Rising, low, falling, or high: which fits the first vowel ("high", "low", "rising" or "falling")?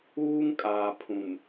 high